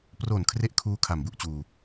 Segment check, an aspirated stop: present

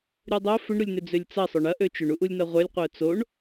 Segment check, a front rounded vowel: present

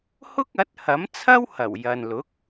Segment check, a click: absent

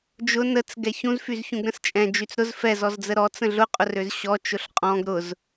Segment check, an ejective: present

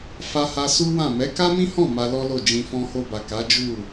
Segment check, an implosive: absent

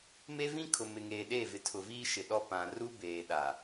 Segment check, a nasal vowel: present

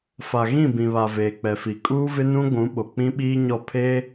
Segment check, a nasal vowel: present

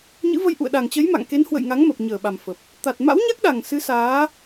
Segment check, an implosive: present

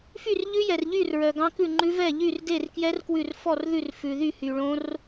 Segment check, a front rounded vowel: present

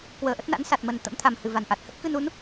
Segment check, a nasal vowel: absent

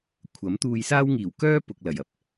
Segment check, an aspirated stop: present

